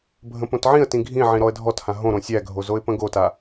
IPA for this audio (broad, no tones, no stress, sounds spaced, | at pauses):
bʱ ə̃ p õ t ʕ ĩ ə̯ t ĩ ɡʱ ĩ ʕ ĩ ɾ ɔ ə̯ dʱ ɔ t h ã ɦ õ ɾ õ sʲ æ ɡʱ o z o ɪ̯ p ə̃ ɡ o t a